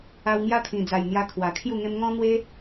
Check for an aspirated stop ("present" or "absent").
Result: present